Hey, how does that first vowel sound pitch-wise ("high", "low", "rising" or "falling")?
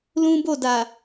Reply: high